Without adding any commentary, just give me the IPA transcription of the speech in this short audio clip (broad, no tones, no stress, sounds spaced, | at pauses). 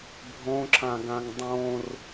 bʱ õ ǁ ã ɡ ã ŋ dˤ õ r